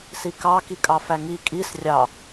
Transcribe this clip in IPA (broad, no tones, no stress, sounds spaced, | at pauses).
s i k ɑ k i kʼ ɑ f æ ŋ i kʼ i s rʲ ɑ